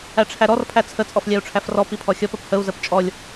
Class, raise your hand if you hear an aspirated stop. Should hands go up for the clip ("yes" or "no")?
yes